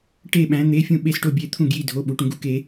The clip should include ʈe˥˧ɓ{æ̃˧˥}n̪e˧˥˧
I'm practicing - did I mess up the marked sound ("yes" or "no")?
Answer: no